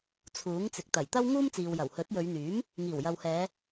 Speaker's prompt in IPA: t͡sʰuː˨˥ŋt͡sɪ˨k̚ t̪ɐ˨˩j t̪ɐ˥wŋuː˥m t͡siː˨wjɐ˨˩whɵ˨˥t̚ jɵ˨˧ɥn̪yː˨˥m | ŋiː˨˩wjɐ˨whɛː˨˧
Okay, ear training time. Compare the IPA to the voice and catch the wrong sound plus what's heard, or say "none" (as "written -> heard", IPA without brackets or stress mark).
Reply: none